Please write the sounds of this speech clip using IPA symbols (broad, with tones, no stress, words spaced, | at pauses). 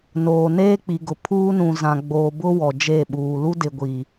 noː˨ neː˦k͡pi˨ɡʊ˨ pʰuː˦nũ˨zã˨ ɡ͡boː˨bʊ˦ wɔ˨d͡ʒe˦˨ɓuː˨ lu˦dɪ˨ɡʷi˨